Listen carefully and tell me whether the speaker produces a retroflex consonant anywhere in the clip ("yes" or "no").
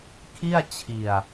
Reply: no